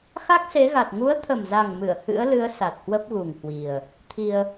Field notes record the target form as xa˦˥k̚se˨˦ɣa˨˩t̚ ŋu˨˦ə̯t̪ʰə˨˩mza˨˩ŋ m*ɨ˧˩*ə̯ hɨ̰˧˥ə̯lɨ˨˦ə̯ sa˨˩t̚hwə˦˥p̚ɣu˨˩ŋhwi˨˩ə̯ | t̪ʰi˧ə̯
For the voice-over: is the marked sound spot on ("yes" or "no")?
yes